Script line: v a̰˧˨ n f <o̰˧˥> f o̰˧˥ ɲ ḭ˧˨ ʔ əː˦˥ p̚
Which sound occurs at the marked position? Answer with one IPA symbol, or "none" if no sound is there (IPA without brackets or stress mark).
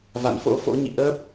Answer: o̰˧˥